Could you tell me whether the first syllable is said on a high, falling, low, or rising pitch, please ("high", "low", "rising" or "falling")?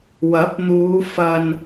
rising